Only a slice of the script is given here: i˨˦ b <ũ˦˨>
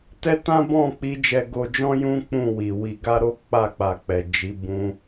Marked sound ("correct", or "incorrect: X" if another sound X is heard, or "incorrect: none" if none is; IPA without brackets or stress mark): incorrect: ũ˧